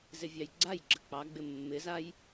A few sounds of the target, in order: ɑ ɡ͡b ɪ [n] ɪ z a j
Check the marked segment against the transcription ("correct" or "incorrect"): incorrect